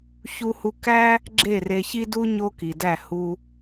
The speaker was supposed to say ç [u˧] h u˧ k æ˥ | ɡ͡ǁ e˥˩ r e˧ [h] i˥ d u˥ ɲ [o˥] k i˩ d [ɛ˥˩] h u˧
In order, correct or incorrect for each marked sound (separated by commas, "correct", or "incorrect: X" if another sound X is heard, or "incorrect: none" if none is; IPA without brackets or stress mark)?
correct, incorrect: ç, correct, incorrect: æ˥˩